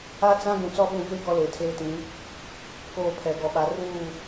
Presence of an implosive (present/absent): present